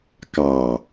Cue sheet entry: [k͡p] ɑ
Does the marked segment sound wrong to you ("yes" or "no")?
yes